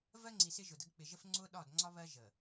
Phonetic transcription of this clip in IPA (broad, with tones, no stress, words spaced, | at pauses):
vɜ˦ŋ͡ǀi˨ sɪ˦ʒʊ˨də˦ɡ k͡pɪ˨ʒə˦fŋ͡ǀʊː˦ ɗɒ˦˨dŋ͡ǀɒ˦βɜ˦ ʒə˨